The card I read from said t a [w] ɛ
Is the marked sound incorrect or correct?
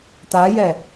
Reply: incorrect